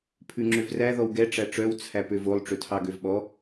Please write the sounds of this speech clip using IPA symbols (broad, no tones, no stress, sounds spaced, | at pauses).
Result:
pʰ ʉ ŋ͡ǁ ø v r æ ð ɔ w ɡ ɛ ʈ͡ʂ æ ʈ͡ʂ œ w t͡sʰ æ p ø v o lˠ ʈ͡ʂ ɵ tʰ ɑ ɡ ø v ɓ ɔ